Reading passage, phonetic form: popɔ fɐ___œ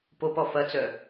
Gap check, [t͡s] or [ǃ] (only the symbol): t͡s